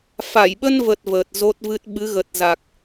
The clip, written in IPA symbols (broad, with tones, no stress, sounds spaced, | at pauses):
f a˧˩ j ɓ ə˧ n v ə˨˩ t̚ v əː˨˩ t̚ z o˦˥ t̚ v ɨ˦˥ t̚ ɓ ɨ˨˦ ɣ ə˨˩ t̚ z a˨˩ k̚